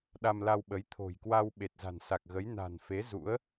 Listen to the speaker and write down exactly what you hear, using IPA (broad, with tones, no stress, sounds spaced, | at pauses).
ɗ a˧ m l a˧ w ɓ ə˨˦ j t̪ʰ o̤˨˩ j k w a˧ w ɓ e˨˩ t̚ z a̤˨˩ n s a˨˩ k̚ ɣ ə˨˦ j n a̤˨˩ n f e˨˦ z ṵ˧˥ ə̯